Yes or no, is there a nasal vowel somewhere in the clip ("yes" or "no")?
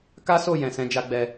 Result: yes